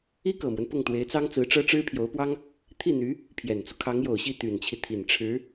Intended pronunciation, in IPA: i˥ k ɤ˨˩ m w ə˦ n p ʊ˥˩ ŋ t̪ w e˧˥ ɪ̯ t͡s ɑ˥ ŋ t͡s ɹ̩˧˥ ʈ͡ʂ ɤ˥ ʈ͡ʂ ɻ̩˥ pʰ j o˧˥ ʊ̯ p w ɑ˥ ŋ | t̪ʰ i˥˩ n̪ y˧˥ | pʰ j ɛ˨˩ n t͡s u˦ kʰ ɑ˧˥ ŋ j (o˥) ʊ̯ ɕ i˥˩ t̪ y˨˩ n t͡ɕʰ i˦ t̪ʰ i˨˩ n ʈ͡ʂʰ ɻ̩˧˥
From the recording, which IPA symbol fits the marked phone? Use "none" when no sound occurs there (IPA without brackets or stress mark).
o˨˩